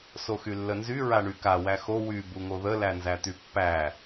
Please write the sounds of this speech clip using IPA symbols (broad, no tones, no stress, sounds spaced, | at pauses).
s o x y lː ə n z y ɹ a ɳ y k a w æ x o w y b u ŋ o ð ə l æ n z æ t̪ y pː æ